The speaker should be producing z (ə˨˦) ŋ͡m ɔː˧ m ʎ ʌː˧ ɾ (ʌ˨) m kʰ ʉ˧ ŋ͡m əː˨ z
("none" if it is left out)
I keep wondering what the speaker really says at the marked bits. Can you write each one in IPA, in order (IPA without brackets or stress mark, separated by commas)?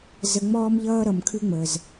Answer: ə˨, ʌ˨